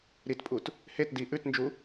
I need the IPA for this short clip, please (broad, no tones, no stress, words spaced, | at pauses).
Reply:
ɾitpʼut | het di ʔʉtnd͡ʒu